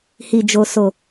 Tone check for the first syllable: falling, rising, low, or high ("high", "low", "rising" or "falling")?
low